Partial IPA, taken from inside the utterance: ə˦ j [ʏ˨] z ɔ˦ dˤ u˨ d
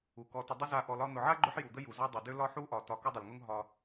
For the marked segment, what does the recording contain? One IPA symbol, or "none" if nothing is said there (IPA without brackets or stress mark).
u˨